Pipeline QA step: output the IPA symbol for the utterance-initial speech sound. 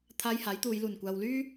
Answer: t̪ʰ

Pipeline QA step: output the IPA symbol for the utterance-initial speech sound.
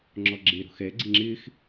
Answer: ŋ͡ǁ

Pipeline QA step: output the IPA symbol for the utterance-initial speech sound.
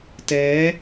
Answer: t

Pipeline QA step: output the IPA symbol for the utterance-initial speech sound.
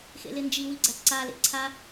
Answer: x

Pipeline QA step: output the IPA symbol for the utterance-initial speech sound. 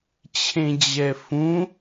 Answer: t͡ɕʰ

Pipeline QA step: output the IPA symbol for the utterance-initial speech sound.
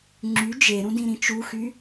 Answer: ŋ͡ǁ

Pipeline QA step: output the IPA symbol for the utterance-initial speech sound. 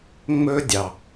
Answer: ŋ͡m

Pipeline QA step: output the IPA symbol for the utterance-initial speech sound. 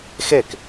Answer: x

